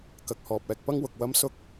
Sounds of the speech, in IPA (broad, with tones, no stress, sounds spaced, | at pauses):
k ɐ˨ k̚ h ɔː˨ p̚ ɛː˨ k̚ p ɐ˥ ŋ w ʊ˨ k̚ w ɐ˧ m s ʊ˧ k̚